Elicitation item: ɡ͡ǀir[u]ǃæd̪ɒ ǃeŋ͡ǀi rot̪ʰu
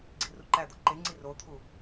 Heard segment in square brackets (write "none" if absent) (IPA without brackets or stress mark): u